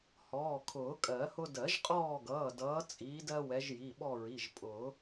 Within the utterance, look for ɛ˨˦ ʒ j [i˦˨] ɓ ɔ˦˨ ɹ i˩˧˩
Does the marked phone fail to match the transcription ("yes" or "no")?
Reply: yes